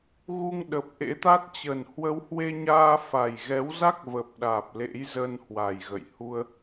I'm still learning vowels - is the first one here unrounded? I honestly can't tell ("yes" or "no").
no